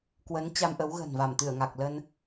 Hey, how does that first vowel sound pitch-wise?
rising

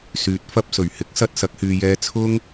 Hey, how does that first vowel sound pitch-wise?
rising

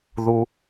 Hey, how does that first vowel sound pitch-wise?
high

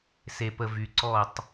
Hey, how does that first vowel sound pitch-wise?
low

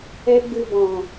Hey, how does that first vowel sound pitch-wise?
high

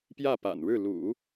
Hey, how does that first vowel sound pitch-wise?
falling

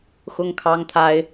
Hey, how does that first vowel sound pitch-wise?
high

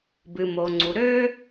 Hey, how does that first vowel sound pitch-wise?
low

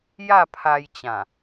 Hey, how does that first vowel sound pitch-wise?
falling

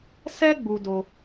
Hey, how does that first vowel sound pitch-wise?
high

